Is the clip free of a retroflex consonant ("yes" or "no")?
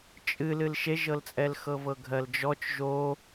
yes